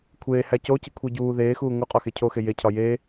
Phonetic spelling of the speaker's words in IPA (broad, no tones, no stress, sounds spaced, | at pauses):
kʷʰ eː h æ c o c i kʷʰ i ɟ uː ð eː x uː ŋ u qʼ ɒ x e cʰ o x e j e cʰ ɒ j eː